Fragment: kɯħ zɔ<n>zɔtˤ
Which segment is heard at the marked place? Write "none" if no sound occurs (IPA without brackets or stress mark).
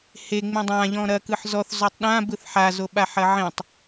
θ